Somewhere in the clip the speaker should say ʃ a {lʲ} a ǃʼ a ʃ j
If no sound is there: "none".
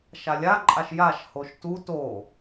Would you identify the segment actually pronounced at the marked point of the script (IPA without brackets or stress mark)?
lʲ